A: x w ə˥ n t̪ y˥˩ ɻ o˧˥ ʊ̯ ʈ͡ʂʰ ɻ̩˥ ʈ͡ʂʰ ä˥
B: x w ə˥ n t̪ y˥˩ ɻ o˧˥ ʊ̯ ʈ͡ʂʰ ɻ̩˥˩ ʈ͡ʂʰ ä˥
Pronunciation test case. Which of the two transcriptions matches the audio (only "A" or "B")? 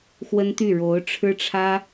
A